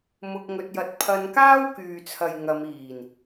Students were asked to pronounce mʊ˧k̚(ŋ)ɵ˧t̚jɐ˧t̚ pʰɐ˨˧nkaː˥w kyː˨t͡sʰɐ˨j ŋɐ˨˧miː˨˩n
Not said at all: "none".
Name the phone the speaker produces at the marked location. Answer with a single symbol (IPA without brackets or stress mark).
ŋ